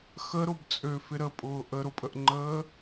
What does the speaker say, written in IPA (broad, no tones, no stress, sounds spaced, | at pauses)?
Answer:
x ə ɾ ʊ b t͡sʼ ø f ɪ ɾ ə pʼ ʊː ʔ ə ɾ ʊ pʼ ə ʔ ŋ͡ǃ əː